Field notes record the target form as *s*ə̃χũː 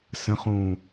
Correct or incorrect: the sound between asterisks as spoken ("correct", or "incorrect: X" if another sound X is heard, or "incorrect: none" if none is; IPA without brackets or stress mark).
correct